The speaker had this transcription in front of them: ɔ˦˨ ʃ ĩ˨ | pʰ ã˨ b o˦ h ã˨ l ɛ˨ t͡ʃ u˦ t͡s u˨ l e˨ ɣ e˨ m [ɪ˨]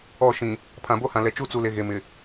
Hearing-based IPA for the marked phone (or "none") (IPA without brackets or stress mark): ɪ˨